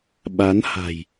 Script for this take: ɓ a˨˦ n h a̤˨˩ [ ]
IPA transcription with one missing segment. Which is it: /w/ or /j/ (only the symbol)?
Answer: j